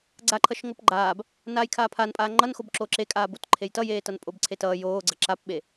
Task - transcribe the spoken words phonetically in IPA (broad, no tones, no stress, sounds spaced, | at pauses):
ɡ͡ǀ a ǃʰ ʌ ʃ ŋ o p ɡ͡ǃ aː b | n aː j kʰ aː pʰ a n pʼ aː ŋ͡ǃ ʌ n x o b ǁ o ǁ e kʼ aː b o t ǃʰ e j t ʌ j eː t ʌ n pʼ o b ǀʰ e t ʌː j oː ɡ͡ǀ ʌ ǁ a p ɓ e